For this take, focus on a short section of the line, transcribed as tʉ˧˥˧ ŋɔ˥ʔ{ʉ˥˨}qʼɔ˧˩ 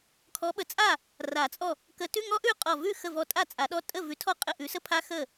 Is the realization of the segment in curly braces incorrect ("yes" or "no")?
no